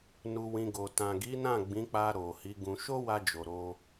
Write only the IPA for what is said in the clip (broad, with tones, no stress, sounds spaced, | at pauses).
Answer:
n u˧ w ĩ˧ ɡ o˨ t ã˨ ɡ i˨˦ n ã˦˨ ɡ͡b ĩ˨˦ k͡p a˧ ɾ o˨ h i˨˦ ɡ ũ˧ ʃ o˦ w a˧ d͡ʒ o˨ ɾ o˧